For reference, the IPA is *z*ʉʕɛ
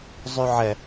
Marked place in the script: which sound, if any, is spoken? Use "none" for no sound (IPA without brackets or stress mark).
zˤ